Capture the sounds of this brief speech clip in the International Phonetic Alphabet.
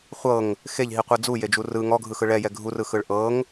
χʷɤŋ | xeʎɦiqʷɯ d͡zujed͡ʒu rɯ ŋɔɡʱɯxɯ ɭɛjɛ ɡʱurɯxɯɭ ʔɤŋ

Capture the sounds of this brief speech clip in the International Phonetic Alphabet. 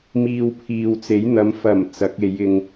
miː˧wpʰiː˨wt͡se˨˥jn̪ɐ˨˧m fɐ˨˩m t͡sɐ˨˥k̚e˨˧jɪ˧ŋ

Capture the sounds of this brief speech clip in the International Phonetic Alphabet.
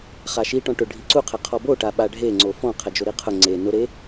χaʃiʈɔ̃ ʈʊ ɖʱiǀuqʰɛ qʰɔboʈa ɓaɖʱe ŋ͡ǀofɔ̃ qʰɛd͡ʒoɾiqʰʊ ŋ͡ǀe nʊɾe

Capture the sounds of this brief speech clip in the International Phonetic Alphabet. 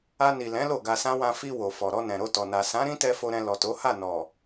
a˧ni˨lɛ̃˨˦ lo˦˨ɡa˧sã˦ wã˧fi˧ wo˨fɔ˨ ɾɔ˧nɛ̃˨ɾo˧tɔ˨ na˨sã˨˦ ɾĩ˦tɛ˧fo˨ɾɛ̃˨ lɔ˨to˨˦ha˦˨ nɔ˨

